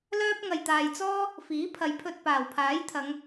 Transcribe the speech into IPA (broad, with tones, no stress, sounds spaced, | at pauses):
l œː˥ p̚ ŋ ɐ˨ j t̪ aː˨ j t͡s ɔː˥ | f iː˨˥ pʰ ɐ˨˧ j pʰ ɵ˧ t̚ p aː˨˩ w pʰ aː˨˥ j t̪ʰ ɐ˨˧ ŋ